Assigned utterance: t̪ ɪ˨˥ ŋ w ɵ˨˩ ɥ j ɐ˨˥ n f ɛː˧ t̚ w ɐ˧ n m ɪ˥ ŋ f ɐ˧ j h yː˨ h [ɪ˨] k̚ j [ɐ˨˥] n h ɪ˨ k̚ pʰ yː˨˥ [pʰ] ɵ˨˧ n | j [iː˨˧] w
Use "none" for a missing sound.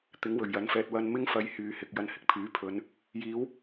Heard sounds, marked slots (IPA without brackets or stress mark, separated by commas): ɪ˨, ɐ˨˧, pʰ, iː˨˧